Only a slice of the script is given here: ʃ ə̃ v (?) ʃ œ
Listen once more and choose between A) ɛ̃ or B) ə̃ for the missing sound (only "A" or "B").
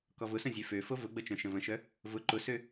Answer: B